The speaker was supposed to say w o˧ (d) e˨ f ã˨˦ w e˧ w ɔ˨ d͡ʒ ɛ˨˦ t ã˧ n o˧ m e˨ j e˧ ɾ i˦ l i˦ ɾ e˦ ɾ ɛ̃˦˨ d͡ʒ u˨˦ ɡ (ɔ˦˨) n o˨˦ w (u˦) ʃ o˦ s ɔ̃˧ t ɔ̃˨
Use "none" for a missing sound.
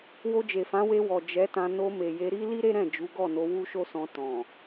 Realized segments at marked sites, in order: d͡ʒ, ɔ˦˨, u˦

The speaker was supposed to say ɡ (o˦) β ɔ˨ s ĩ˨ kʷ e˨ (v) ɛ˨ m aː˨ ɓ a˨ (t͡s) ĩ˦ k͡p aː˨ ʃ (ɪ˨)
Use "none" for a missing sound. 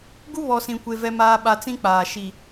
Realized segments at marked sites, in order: u˦, v, t͡s, i˨

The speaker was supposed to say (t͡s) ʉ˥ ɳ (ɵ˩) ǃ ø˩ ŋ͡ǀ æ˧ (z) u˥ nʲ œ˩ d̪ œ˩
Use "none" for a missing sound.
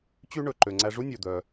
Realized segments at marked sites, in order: t͡ɕ, ɵ˩, ʐ

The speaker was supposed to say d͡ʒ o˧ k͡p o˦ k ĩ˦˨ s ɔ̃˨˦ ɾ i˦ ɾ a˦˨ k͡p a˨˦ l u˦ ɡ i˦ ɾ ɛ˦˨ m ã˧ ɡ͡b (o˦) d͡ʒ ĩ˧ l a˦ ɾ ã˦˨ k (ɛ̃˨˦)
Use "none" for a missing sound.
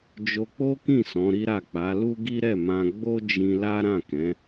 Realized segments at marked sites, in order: o˦, ɛ̃˨˦

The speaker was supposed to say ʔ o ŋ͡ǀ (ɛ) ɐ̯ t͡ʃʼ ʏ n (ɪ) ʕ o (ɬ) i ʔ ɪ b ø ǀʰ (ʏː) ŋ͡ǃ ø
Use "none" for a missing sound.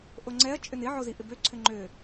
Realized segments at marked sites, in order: ɛ, ɪ, z, ʏ

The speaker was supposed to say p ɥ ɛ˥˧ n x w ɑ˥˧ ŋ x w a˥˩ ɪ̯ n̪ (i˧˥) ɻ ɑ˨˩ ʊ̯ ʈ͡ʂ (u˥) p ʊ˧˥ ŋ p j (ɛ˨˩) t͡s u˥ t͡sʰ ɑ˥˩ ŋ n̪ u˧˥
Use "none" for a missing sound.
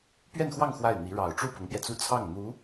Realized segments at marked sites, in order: i˧˥, u˥˩, ɛ˧

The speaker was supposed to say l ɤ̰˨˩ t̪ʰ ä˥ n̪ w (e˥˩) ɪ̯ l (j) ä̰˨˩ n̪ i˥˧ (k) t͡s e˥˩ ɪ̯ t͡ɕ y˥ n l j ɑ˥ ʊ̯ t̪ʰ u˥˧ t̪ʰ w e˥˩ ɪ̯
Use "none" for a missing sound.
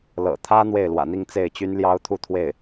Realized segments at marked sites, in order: e˥˩, w, ŋ

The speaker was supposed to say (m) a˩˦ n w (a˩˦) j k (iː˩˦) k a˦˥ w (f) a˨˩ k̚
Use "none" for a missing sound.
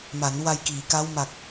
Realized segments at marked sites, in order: m, a˧, iː˩˦, m

